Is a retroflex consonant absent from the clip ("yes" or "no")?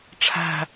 no